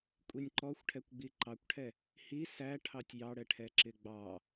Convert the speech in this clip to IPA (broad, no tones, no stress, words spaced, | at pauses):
kʷʼinʲǃɔxʷʈʰɛkʷɡ͡bi ǃɑkʷʈʰɛ | hi sæ ʈʰɑtʲjɑɽɛʈʰɛ ǁɪɡ͡bɑ